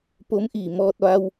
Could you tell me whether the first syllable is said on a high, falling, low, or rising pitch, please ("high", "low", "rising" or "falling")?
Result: rising